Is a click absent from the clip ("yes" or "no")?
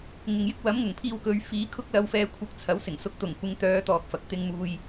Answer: yes